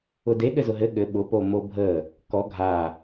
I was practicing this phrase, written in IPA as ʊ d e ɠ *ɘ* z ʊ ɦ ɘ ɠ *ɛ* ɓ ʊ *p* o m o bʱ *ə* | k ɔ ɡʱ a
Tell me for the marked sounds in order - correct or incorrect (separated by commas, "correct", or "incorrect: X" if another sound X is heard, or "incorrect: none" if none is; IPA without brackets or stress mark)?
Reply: correct, incorrect: ɘ, correct, correct